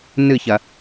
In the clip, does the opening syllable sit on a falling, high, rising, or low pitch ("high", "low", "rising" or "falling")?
falling